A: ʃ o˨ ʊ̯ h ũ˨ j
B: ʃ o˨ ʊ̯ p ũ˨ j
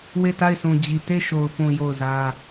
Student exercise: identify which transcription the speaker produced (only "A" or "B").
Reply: B